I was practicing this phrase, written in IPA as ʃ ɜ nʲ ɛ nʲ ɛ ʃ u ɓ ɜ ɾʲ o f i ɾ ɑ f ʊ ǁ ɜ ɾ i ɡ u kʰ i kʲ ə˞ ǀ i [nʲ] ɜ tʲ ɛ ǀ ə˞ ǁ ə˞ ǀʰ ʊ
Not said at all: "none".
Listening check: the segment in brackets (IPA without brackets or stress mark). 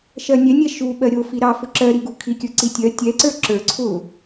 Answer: tʲ